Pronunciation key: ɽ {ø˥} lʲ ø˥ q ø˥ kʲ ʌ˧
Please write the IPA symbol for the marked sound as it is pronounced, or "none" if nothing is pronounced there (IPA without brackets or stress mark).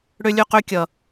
ø˥